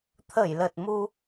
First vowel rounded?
no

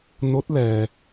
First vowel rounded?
yes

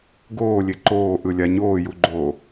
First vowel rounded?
yes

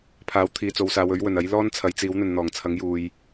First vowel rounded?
no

